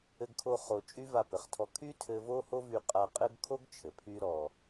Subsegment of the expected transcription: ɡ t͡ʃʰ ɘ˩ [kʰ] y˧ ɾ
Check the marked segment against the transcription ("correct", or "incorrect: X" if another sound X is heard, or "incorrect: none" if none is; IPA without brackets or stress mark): incorrect: pʰ